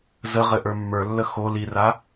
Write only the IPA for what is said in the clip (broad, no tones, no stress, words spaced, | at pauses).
zəʁɘ ʔə˞mːə˞lːə xo lira